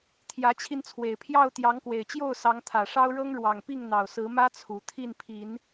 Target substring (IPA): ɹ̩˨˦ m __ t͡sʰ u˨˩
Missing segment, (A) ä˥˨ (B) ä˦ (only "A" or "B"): B